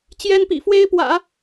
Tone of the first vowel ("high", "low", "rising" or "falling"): high